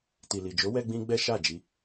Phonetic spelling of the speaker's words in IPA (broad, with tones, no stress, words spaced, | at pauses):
ti˨li˨d͡ʒo˨˦wɛ˧ ɡ͡bĩ˦ɡ͡bɛ˦ ʃa˦˨d͡ʒi˧